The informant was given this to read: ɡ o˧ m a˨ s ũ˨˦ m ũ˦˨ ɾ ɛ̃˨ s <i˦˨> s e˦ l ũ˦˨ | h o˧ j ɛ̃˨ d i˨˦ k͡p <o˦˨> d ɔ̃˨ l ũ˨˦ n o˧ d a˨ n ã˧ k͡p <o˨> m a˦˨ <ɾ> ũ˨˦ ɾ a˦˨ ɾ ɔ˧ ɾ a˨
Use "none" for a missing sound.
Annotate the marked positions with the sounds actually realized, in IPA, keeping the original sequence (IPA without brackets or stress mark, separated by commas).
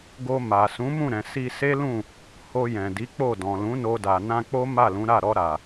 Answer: i˧, o˦˨, o˦, l